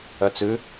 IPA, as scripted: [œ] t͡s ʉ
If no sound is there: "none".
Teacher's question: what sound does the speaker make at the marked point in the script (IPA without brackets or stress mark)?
œ